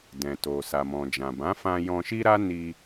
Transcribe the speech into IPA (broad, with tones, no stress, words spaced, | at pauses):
dɛ̃˨to˨ sa˨mɔ̃˨d͡ʒã˨ bã˨˦fã˧ jɔ̃˧ʃi˦ɾa˦ ni˧